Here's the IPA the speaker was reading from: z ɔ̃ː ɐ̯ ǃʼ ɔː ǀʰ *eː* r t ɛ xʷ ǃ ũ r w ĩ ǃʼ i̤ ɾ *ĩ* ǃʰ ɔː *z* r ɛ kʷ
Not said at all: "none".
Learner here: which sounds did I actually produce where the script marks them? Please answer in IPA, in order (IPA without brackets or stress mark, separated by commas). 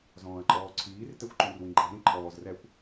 iː, ĩ, z